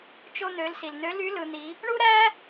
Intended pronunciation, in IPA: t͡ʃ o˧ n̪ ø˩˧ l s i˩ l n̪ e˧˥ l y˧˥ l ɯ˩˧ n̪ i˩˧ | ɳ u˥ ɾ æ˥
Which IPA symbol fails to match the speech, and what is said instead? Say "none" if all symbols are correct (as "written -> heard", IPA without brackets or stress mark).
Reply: e˧˥ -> ø˧˥